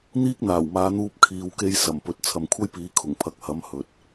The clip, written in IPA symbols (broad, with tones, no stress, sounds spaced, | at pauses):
n̪ iː˥ k̚ n̪ aː˨˩ w m aː˨˧ n̪ uː˧ p̚ kʰ iː˨ w k e˧ j s ɐ˨˩ m p ɵ˨ t̚ t͡sʰ ɐ˨ m kʷʰ ɐ˥ j p iː˨˧ kʰ ʊ˨˩ ŋ pʰ ɐ˨˥ k̚ h ɐ˨˥ m h ɵ˨ t̚